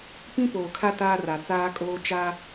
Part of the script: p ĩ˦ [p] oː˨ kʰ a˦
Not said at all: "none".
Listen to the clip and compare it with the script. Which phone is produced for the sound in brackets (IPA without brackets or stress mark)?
p